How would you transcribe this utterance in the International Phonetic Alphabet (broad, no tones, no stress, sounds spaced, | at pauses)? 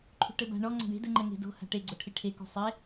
ǃʰ ṳ ʈ ɘ b a̤ ɳ ɔ ŋ͡ǀ a̤ ɳ e̤ d ɘ ŋ͡ǃ ɛ ŋ e̤ d o̤ h a̤ ʈ e ɡ͡ǀ o ʈʰ i ʈʰ e k ṳ sˤ e